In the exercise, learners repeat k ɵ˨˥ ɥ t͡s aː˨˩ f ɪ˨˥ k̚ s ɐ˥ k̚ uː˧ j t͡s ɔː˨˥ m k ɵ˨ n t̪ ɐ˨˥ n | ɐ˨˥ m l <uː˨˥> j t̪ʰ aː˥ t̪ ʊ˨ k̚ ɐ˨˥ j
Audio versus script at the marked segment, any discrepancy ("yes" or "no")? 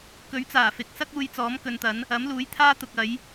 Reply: no